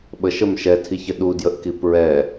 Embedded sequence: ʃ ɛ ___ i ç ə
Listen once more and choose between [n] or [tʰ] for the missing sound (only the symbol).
tʰ